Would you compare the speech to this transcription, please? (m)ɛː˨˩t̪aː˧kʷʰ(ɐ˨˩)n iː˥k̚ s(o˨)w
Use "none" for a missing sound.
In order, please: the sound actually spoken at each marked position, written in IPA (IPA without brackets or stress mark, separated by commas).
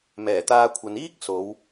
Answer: m, ɐ˨, o˨˧